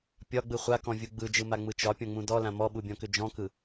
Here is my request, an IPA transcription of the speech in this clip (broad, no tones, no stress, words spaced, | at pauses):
pʲɒɡ͡bɯ χʷakɔ̃vʲu ɡ͡bɯd͡ʒɯma ŋ͡mɯt͡ʃɒ pʲɔ̃ŋ͡mũdɔlã mɔɓubʲɔ̃kʏ d͡ʒɔ̃kɯ